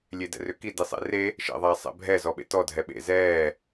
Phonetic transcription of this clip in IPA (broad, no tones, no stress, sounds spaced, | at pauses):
lʲ e d ɛ̰ r ʏ k i d i sˤ ḛ r e | ʃ ɛ̰ ðˤ aː sˤ ɛ̰ bʱ ɛ z ɔ ɓ ḛ t ɔ dʱ ɛ ɓ ḛ z ɛː